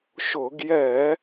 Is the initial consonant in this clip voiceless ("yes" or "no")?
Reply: yes